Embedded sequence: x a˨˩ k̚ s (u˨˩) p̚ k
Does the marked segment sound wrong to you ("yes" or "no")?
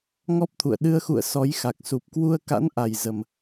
no